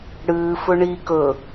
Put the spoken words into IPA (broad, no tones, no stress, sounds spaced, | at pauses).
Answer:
ɽ ɨː f ɵ ɳ i k ɵ